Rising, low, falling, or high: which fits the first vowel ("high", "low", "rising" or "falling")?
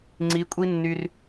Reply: rising